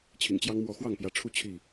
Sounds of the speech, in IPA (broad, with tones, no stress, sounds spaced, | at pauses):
t͡ɕʰ ḭ˨˩ ŋ t͡ɕ j ɑ˦ ŋ m w ɔ˨˦ x w ɑ˥˨ ŋ p j ä˨˦ ʈ͡ʂʰ u˥˨ t͡ɕʰ i˥˨